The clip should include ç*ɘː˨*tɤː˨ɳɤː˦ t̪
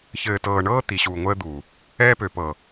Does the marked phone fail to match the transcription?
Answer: no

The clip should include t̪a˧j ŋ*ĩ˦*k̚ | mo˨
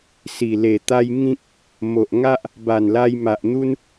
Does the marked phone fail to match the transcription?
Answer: no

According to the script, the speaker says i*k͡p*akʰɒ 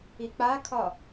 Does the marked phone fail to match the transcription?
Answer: no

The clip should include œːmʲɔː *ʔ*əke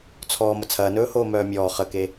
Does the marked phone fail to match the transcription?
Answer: yes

